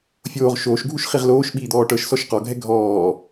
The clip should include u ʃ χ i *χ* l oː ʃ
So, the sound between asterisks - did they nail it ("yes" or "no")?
no